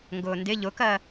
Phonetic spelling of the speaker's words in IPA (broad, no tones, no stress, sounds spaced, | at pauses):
ŋ ɡ ʊː n d ɪ ʎ ʊ k ɜ